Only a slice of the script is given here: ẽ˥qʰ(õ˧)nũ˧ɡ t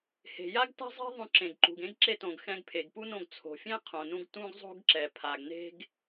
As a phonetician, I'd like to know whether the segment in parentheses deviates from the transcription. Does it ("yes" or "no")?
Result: yes